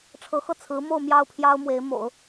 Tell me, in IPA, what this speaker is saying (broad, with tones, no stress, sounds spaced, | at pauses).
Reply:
ʈ͡ʂʰ ɤ˧˥ x ɤ˥˩ t͡sʰ ɹ̩˧˥ m o˥˧ ʊ̯ m j ɑ˥˩ ʊ̯ pʰ j ɑ˥ ʊ̯ m w e˧˥ ɪ̯ m o̰˨˩˦ ʊ̯